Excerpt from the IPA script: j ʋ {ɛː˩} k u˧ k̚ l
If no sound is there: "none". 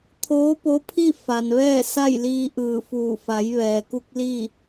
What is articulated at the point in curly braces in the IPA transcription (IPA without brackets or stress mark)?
ɛː˩